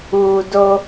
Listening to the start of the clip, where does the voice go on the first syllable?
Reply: low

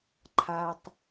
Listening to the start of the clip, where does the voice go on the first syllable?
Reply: low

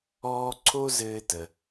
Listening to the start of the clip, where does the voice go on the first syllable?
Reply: high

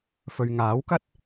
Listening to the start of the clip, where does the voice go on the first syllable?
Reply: low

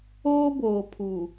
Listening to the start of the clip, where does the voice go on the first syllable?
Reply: high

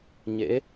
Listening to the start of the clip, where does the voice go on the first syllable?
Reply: rising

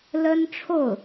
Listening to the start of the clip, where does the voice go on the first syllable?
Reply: high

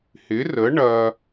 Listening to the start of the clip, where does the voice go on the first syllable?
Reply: rising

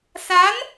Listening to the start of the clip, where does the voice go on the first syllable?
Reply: rising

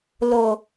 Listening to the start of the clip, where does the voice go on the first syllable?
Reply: low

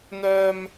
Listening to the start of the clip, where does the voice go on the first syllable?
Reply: high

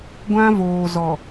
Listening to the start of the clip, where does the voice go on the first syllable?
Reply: high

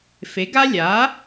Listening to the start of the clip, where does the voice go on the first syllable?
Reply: rising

